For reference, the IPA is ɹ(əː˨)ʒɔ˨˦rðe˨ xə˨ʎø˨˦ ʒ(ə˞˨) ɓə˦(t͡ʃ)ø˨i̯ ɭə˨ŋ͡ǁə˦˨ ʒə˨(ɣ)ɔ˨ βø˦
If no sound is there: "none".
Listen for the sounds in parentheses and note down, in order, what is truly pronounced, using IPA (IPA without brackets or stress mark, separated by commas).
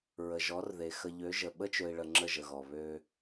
ə˨, ə˨, t͡ʃ, ɣ